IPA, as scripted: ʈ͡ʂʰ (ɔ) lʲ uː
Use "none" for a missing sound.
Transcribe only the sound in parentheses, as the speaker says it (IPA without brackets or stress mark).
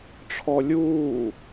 ɔ